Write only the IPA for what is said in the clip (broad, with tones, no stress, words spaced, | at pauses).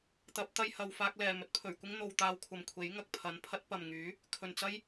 t̪ɐ˨˥p̚ t̪ɐ˧jhɐ˨w faː˧k̚lɛː˨˩ mɵ˧t̚pʰɵ˨˩ɥkʷɪ˥ŋ n̪o˧wt̪aː˧w kʷʰɐ˨mkʷʰe˨˥jŋɐ˨k̚pʰɐ˨˧n pʰɐ˥t̚ pɐ˨mŋyː˨˥ | kʰɵ˨nt͡sɐ˥j